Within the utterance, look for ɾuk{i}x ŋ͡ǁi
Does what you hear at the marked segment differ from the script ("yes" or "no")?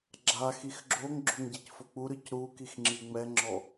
no